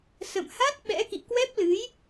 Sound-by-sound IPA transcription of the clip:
sə̰˧˨mha˦˥t̚ ɓɛ̰˧˥kḭ˧˨ kwɛ˦˥p̚lɨ˨˦j

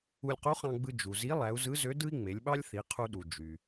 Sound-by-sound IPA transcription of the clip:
u˧lʲqu˧˥χɑ̃˧ɡ͡bɯ˧ d͡ʒu˩zi˧˥ lˠæ˩˧u̯zɯ˧˥zø˧˥ dɯ˥i̯ŋ͡me˩˧lʲɓɑ˥lʲ θi˩˧qʰu˧ɗu˩ d͡ʒy˩

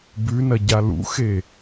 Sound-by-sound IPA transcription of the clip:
bʉnɐɟa lṵxe

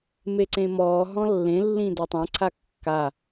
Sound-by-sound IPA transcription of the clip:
meǀẽmɔː ɦɔ̃lːẽlːĩ datˤãǀʰa kːa

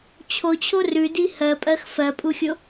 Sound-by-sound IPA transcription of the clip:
t͡ɕʰot͡ɕʰo rʉdi hɜpʼɜx fɜpʼuxʲo

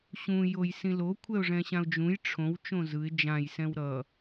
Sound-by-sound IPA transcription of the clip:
ɕũ jojsĩlo kʷʰɛʊ̯ʐɛ̃ɕãʊ̯d͡ʒũj ʈ͡ʂʰõw t͡ʃõzɯɪ̯ d͡ʒãj sɛ̃wɾʌ

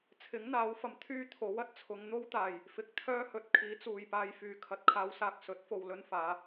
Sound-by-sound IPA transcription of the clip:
t͡sʰɪ˨˥ŋ n̪aː˨˥wfɐ˨˩m t̪ʰyː˥ t̪ʰo˨˥wɐ˧t̚t͡sʰʊ˨˧ŋ n̪o˥wt̪aː˨˩j | fɪ˨k̚t̪ʰœː˥hɵ˨˥t̚ kʰiː˨˥t͡suː˨˩jpaː˧j fyː˨˩kʰɐ˨t̚ kʰaː˨˧wsaː˨k̚ sɵ˨˥t̚fo˨wlɵ˧n faː˨˧

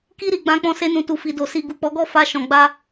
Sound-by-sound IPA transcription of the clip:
ki˧ ɾi˨ɡ͡bã˨˦k͡pɔ̃˧ se˧nũ˨tu˨ fi˨do˨ si˨ɡu˨k͡pɔ˨˦ɡɔ˦˨ fa˧ʃɔ̃˨ɡ͡ba˧

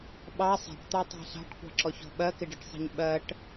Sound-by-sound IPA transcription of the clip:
ɓɑ sˤɛ̤ʈt̪ɑtˤɑ̤ ɬɑ̤ʈkʷɑ̤ǁɔçɔ̤ ɓɜkɪɖɪʈsˤɛ̤ɲ ɓɜʈ

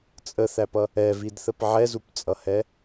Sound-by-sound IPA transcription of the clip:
t͡sʼəθæpʌ | ɛvidθəp ʕɛzupt͡sʼʌhɛ

